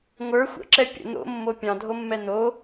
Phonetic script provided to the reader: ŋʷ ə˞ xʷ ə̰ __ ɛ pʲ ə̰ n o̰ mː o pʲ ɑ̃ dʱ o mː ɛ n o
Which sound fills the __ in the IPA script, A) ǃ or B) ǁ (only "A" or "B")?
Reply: B